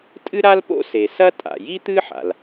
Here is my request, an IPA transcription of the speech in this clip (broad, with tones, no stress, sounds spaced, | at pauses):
tʼ ɨ˥ ɾ a˥ l p o̰˥ s e˩ s ɐ˥ tʼ a̰˩ j i˥ t̪ ɨ˥ ħ a̰˩ l